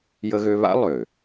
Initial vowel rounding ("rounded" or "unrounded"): unrounded